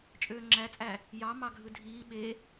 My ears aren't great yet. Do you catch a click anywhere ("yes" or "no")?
yes